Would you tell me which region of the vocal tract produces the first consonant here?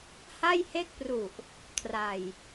throat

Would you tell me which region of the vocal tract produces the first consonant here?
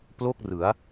lips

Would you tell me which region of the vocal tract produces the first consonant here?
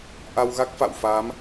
throat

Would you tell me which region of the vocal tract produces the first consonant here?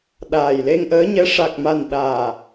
tongue tip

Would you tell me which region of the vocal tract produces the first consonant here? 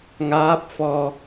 velum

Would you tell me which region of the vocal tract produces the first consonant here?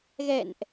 velum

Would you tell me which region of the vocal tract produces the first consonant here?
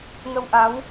velum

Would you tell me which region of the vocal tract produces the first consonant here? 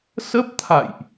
tongue tip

